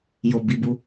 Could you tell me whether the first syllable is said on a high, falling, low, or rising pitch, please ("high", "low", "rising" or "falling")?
low